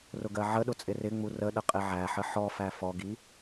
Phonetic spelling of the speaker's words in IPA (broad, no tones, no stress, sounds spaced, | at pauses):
r ʊ ɡ ɜ ʕ ə ɗ ʊ t͡sʼ ɪ r ɪ ŋ͡m u r ə ɗ ə qʼ ɪ ʕ æ ħ ə ħ ɔ f æ f ɔ ɡ i